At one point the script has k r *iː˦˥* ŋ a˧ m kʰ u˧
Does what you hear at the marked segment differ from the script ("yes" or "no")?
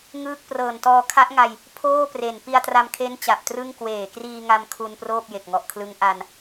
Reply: yes